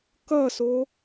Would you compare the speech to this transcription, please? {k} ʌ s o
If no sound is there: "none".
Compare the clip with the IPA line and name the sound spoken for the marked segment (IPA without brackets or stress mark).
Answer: k